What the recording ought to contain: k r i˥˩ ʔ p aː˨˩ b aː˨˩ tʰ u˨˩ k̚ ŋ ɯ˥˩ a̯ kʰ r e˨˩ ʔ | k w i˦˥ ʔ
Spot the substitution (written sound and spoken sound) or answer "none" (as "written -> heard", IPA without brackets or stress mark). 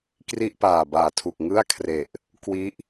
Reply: none